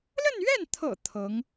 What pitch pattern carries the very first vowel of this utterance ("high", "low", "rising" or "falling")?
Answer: falling